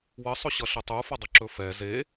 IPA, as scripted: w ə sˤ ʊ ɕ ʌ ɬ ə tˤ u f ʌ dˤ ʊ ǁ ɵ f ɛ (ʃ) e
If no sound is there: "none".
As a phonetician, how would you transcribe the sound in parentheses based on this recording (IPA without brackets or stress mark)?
z